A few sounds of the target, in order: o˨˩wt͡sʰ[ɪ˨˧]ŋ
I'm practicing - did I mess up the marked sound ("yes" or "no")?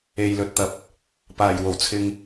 yes